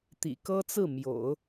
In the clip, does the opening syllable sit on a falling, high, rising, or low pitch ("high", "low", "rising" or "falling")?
low